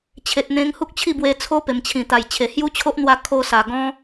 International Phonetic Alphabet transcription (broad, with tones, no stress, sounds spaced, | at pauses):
t͡ɕʰ e˨ t̚ n̪ ẽ˧ ŋ h u˦ k̚ t͡ɕʰ i˥˧ b w e˧ t͡sʰ o˦ p e˨˩ m t͡ɕʰ ĩ˨˩ t̪ a˨˩ j t͡ɕʰ e˨˩ h j u˦ t͡ɕʰ o˦ ʔ n̪ w a˧ kʰ o˧ s a˨˩ ɡ ɔ̃˦